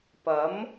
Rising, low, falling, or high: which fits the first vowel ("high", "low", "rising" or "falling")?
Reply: rising